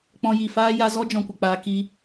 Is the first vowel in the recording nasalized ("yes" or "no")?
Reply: yes